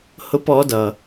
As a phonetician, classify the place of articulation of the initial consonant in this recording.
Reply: glottal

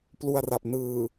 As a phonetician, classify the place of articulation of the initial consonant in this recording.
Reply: labial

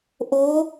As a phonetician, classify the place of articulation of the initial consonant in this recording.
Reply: glottal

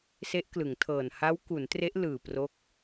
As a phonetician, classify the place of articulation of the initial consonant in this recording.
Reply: alveolar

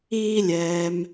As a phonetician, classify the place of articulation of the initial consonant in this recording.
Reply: alveolar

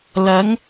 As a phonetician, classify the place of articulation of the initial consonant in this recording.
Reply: alveolar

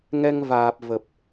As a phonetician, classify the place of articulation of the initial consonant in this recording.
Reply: velar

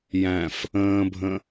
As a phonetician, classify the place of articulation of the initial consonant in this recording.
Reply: palatal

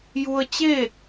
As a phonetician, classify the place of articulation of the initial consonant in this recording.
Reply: palatal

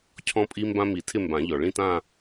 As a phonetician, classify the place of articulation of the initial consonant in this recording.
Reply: palatal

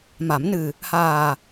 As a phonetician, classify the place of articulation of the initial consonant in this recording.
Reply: labial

